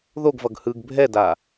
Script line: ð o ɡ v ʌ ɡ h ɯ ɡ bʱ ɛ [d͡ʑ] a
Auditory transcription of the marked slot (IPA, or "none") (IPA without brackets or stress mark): d